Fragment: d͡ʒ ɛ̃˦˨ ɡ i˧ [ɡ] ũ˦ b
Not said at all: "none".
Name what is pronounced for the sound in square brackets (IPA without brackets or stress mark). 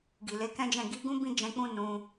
ɡ